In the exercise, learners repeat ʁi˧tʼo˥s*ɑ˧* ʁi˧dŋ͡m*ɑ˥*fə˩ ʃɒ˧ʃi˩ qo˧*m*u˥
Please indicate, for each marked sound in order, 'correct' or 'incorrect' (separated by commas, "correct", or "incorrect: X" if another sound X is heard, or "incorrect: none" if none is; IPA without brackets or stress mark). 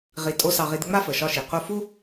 correct, incorrect: a˥, incorrect: f